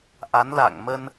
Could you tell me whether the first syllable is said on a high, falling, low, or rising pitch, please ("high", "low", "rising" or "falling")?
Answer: rising